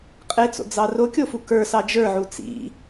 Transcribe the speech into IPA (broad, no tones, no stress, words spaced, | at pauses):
qʼet͡so̰ d͡zɑrokʲofu kə˞sɑ d͡ʒə˞ʕu t͡sḭ